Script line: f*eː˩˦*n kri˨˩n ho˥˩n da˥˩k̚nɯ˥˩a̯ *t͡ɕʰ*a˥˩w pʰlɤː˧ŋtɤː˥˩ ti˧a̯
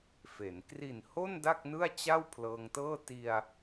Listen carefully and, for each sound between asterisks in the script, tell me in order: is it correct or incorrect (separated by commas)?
incorrect, incorrect